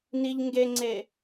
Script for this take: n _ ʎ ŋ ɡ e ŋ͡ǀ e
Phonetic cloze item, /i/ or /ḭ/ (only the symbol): i